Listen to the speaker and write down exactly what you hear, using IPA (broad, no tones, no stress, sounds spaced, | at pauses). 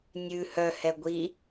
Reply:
nʲ ʉ h œ h ɛ ɡʷ i